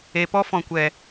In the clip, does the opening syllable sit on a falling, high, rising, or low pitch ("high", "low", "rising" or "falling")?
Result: low